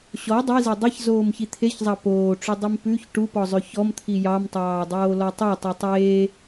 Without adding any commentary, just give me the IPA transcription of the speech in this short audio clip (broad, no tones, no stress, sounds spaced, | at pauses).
ɕ ɔ dˤ i z e dˤ ɛ ç z oː m ç i t̪ʰ e ç zˤ ɑ p oː ʈ͡ʂ ʉ dˤ i m p ʉ ç ʈ u p ɔ zˤ ø ç ɔ m t̪ʰ i j ɑ m tˤ ɑː dˤ oː l ɔ tˤ ø tˤ u tˤ eː